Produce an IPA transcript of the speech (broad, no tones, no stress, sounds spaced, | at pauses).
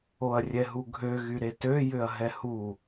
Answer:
o ɐ̯ rʲ ɛ ɦ u ɡʱ ø ɣ y ɾ e t ø j ʏ ɐ̯ ɦ ɛ h u